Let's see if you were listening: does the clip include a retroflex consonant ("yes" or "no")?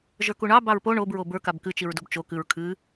yes